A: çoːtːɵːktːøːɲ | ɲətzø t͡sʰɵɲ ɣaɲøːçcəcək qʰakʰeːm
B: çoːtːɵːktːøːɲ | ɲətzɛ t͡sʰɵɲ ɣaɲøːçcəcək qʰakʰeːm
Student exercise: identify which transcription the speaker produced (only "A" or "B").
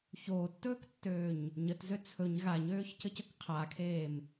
A